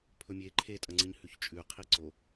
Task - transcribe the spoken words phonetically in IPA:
pʰ ɵ mʲ e ǃʰ e tʼ ɐ ŋ͡ǀ ɨ ɲ h ʉ ç t͡ʃʼ ʉ qʰ i ǀ o

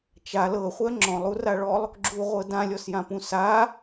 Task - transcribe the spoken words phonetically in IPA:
t͡ʃ a l ɤ χʷ ɜ ŋ͡ǁ ɔ̃ lˠ u r a ɭ ɔ lˠ | ɡ͡ǁ u ʁʷ ɤ d ã lʲ ɔ s j ã p ũ s a

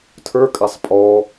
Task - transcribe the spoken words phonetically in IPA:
tʰ ə˞ kʼ a sˤ pʼ ɔ

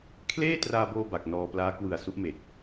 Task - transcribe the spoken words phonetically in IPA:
kʰ l eː˥˩ t r aː˧ b oː˧ b a˨˩ k̚ n ɔː˧ p l aː˦˥ k w ɯ˨˩ a̯ s u˦˥ ʔ m e˨˩ k̚

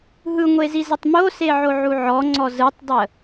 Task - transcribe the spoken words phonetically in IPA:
ɦ ɯ ŋʷ e z i z ə tˤ m o s e ʕ o ʕ u ʕ ɔ ŋ͡ǀ ɔ z ɯ tˤ dˤ ə

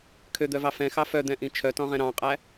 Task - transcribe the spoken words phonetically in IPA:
kʰ ø d̪ œ v ɑ f ɛ̃ x ɑ f œ d̪ ɛ̃ ʔ ĩ t͡ʃʰ œ t ɔ̃ ʁ ɛ̃ ɾ ɑ̃ qʼ æ

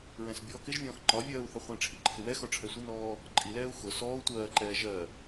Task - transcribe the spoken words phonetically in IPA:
ɹ ɛ̃ s bʲ ɔː k ɪ ʒ vʲ ɔ̃ː x ŋ͡ǃ ɒ vʲ ɜː u̯ θ ɒ χʷ ɛ̃ ʈ͡ʂʰ i ǃʰ ɪ w ɛ x ɔ ʈ͡ʂʰ ɛ sʷ ɪ n ɔː | ǃʼ i l ɛː u̯ x ʊ s ɔː u̯ tʷ ɜː ǃ ɛː ʒ ɜ

